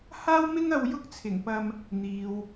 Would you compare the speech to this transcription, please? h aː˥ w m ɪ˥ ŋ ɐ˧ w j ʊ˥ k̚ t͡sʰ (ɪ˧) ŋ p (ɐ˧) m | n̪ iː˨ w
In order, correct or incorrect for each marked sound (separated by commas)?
incorrect, correct